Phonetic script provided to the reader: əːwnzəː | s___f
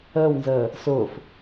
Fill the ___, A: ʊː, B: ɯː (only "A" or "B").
A